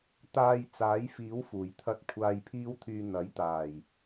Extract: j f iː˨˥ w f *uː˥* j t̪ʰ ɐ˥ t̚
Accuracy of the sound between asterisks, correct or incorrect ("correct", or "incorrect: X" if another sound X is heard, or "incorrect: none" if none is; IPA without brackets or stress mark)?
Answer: incorrect: uː˨˩